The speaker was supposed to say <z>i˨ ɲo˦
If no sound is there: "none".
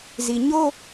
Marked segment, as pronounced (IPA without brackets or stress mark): z